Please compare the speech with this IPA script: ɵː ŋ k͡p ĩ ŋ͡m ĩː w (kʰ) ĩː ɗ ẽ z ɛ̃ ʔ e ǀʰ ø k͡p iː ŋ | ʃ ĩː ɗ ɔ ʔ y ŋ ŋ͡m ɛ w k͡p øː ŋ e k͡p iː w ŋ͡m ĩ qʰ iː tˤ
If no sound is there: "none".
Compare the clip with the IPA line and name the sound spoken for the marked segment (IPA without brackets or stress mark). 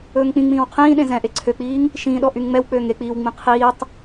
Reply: qʰ